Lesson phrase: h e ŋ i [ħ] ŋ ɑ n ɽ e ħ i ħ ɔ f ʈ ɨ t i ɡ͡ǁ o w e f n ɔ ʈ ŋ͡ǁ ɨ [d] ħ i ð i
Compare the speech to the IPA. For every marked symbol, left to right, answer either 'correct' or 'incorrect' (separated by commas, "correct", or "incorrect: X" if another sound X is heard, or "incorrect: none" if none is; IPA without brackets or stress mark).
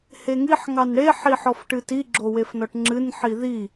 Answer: correct, incorrect: n